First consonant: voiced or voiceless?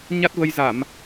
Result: voiced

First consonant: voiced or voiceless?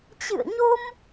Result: voiceless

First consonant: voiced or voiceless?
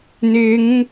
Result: voiced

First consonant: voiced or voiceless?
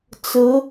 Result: voiceless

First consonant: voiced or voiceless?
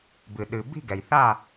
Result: voiced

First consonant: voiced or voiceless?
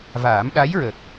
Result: voiced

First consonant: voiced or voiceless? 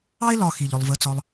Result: voiced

